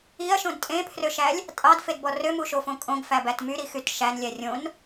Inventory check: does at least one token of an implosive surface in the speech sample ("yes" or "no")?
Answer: no